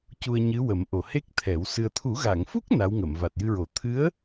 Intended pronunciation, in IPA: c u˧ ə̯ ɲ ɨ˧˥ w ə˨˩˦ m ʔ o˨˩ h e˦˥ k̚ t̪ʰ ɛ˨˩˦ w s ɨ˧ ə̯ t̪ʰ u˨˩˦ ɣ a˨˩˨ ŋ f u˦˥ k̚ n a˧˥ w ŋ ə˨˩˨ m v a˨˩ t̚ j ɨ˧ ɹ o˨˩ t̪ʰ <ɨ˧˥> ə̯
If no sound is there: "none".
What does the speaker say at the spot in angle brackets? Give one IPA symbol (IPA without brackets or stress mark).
ɨ˧˥